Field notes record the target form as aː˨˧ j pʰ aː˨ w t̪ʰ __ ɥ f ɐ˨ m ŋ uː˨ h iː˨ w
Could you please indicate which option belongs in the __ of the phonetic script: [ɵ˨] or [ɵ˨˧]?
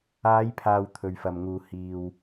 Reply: ɵ˨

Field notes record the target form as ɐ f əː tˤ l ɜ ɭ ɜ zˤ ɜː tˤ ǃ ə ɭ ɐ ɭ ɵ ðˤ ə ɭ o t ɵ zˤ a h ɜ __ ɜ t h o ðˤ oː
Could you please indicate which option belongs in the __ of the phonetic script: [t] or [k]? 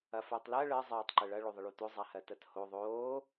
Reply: t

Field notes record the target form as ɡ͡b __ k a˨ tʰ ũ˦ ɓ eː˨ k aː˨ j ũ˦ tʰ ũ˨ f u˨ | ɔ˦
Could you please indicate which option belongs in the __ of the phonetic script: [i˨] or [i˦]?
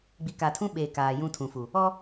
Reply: i˨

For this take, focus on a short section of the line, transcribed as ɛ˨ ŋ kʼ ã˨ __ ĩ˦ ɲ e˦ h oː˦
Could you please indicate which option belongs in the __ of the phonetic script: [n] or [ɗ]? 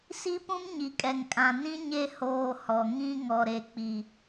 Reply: n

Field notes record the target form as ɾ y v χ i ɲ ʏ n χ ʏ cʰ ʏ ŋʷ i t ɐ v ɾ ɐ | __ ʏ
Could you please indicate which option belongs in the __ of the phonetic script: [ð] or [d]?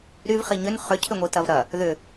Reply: ð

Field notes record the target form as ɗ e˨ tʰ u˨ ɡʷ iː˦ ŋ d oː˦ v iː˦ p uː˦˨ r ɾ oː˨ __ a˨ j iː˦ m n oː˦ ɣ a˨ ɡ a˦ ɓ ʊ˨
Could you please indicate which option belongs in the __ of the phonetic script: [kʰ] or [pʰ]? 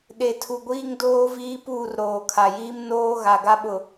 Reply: kʰ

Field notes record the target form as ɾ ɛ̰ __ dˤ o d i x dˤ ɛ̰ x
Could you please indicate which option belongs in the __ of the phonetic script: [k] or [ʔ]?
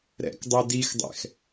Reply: k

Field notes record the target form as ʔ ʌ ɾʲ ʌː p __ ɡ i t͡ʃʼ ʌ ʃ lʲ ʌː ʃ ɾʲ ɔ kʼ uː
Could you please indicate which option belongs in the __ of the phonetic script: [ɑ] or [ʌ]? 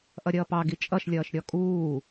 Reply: ɑ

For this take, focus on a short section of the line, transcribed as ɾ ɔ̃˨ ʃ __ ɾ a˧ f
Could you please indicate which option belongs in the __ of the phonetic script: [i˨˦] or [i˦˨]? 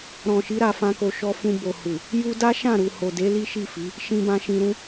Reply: i˨˦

